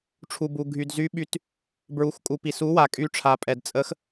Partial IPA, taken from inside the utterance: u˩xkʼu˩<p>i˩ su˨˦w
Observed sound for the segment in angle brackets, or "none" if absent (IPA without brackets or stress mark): p